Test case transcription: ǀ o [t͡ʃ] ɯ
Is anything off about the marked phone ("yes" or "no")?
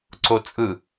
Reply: yes